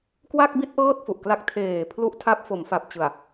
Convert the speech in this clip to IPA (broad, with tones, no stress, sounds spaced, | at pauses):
k w a˥˩ k̚ b i˥˩ t̚ ʔ ɤː˥˩ t̚ f u˨˩ ʔ k l a˦˥ k̚ tʰ eː˨˩ pʰ l u˦˥ ʔ tʰ a˦˥ p̚ f o˩˦ m f a˨˩ p̚ t͡ɕ ɯ˨˩ a̯